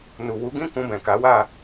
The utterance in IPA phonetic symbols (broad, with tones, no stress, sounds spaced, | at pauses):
n u˨ w u˨˦ ɡ ĩ˦ k ũ˧ b ɛ̃˨ k a˨˦ w a˦˨